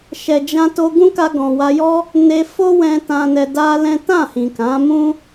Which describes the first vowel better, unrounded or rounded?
unrounded